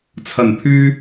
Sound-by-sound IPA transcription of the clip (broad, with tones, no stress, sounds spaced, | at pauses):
t͡sʰ ɐ˨˩ n pʰ yː˧